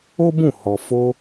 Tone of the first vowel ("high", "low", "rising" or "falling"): high